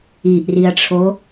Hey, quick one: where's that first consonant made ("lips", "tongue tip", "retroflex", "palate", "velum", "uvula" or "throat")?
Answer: throat